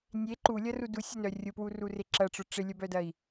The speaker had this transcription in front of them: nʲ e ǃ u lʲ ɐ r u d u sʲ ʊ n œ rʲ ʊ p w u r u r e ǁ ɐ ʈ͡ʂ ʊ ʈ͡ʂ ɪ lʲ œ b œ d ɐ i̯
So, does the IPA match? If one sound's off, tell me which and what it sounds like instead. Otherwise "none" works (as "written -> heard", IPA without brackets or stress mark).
none